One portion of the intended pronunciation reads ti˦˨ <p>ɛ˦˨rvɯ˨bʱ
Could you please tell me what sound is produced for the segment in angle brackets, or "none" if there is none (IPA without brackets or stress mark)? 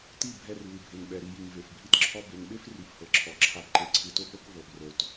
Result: bʱ